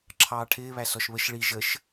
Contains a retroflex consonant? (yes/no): yes